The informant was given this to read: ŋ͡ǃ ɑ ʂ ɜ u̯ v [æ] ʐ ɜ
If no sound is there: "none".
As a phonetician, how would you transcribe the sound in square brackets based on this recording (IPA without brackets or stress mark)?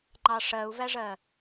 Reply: æ